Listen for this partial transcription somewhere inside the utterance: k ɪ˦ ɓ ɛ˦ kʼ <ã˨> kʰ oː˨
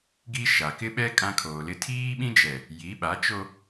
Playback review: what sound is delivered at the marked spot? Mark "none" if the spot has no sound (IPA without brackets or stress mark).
ã˦